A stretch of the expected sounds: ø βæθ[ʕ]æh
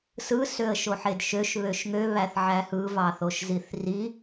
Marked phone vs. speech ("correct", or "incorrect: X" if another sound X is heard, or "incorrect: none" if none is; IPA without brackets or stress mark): correct